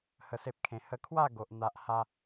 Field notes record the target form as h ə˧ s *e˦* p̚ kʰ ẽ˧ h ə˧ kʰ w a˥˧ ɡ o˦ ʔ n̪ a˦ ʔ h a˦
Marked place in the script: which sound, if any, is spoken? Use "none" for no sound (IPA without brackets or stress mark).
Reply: e˦